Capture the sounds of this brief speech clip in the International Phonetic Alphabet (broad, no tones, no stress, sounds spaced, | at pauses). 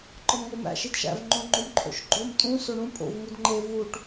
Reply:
ǃ ɒ m ŋ o m æ̰ ʃ i d ʃ æ̰ v ŋ͡ǃ õ ŋ͡ǃ o m ǃʰ o̰ ʃ ɡ͡ǃ o m tʼ ũ s o ɳ ũ pʼ o̰ v ŋ u d ŋ͡ǃ e v u ʈ